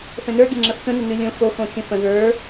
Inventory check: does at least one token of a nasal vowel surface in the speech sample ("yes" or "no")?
yes